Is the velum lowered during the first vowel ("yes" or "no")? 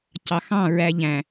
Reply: no